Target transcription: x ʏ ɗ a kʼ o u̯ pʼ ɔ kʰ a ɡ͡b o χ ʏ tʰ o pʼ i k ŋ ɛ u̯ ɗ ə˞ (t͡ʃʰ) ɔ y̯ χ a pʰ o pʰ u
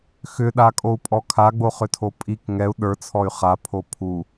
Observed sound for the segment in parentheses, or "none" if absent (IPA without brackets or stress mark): t͡sʰ